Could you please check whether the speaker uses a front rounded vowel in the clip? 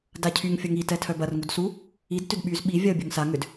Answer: yes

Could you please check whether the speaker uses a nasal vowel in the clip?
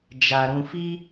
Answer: yes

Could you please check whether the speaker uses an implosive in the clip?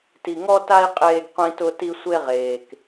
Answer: no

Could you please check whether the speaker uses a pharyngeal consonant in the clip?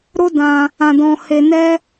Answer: no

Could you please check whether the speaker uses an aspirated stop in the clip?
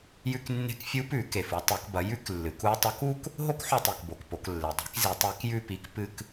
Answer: no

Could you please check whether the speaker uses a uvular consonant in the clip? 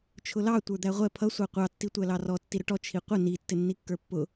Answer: yes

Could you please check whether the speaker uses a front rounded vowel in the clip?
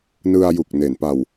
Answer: no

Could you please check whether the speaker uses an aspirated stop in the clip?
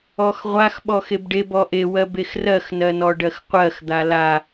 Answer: no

